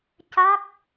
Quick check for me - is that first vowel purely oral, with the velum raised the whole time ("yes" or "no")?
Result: yes